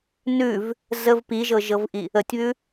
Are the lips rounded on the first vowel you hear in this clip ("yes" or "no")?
yes